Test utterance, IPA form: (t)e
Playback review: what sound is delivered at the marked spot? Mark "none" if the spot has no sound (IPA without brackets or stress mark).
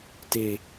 t